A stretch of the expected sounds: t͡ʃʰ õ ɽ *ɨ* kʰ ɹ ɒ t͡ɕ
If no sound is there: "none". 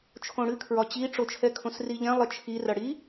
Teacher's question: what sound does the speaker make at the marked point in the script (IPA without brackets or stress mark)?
ɨ